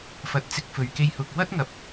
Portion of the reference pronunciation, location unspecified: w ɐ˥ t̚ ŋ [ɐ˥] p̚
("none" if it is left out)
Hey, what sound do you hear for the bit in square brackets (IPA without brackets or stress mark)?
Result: ɐ˨˥